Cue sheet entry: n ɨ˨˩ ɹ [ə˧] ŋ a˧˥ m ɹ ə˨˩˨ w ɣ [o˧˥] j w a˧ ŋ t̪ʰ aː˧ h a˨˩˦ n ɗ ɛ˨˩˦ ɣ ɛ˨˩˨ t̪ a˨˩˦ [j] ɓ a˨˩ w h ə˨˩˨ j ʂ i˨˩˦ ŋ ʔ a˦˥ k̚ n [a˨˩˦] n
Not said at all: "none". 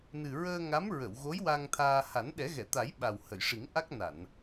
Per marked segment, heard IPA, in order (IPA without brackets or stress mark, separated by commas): əː˧, o˧˥, j, a˨˩˨